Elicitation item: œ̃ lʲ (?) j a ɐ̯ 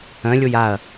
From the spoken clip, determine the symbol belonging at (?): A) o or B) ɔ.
A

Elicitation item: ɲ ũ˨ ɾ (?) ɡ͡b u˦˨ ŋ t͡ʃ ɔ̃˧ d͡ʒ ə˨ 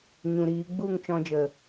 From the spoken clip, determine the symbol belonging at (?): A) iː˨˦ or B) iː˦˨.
A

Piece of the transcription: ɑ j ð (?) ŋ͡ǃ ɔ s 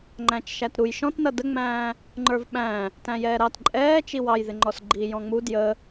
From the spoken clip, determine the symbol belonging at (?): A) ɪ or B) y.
A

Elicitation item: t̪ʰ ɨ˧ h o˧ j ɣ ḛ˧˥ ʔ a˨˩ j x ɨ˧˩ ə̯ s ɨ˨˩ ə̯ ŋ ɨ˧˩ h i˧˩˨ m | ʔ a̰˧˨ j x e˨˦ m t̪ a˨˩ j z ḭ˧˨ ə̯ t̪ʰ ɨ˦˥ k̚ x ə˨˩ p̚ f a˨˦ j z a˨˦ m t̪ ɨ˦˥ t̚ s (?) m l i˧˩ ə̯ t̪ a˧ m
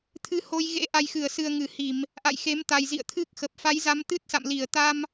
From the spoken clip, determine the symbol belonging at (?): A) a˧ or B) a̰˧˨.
B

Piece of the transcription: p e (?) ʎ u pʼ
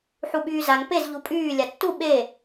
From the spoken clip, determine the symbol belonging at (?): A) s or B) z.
B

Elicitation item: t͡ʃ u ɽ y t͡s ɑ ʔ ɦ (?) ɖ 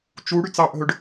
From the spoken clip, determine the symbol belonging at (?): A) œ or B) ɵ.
B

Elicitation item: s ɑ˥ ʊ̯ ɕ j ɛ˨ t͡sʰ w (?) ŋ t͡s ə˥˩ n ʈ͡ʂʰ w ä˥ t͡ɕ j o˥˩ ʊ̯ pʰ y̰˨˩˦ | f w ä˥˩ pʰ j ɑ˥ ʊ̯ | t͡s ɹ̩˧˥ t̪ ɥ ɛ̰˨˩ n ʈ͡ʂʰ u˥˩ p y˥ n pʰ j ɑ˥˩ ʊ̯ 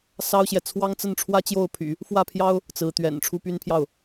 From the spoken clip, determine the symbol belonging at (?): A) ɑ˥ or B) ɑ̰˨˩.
A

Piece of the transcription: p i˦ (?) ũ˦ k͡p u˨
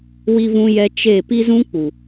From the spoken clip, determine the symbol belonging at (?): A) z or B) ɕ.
A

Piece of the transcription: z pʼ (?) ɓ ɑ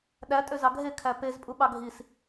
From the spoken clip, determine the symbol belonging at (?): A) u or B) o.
A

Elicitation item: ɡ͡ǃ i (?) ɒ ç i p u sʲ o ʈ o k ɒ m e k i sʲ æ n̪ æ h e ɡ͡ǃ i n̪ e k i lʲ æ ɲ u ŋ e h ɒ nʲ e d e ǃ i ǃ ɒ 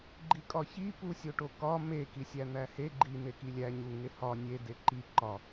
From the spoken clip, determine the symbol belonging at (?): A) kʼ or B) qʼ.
A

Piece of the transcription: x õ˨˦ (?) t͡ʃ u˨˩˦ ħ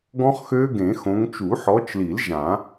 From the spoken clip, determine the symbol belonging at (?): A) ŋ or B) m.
A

